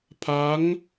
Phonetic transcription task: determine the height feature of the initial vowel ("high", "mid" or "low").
low